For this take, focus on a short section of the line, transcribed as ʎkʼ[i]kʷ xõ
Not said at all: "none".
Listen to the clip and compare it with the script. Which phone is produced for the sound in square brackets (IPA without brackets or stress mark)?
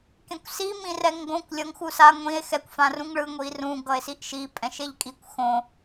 i